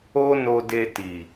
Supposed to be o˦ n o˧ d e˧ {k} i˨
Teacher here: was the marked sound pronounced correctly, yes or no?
no